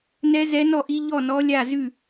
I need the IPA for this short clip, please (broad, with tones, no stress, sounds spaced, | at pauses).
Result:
n ɛ˧˥ z ɛ˧˥ n ɔ˥˩ ʔ i˧˥ ʎ ɔ˥˩ n ɔ˧˥ lʲ a˥˩ z ʉ˥˩